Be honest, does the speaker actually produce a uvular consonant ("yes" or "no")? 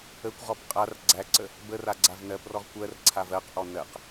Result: yes